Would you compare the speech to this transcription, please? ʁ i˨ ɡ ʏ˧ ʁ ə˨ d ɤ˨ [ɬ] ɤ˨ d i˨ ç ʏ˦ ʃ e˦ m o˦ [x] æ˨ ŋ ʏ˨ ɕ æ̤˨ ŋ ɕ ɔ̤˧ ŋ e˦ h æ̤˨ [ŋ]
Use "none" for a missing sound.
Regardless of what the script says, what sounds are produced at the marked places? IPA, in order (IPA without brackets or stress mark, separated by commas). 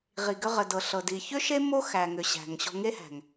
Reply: ɬ, x, ŋ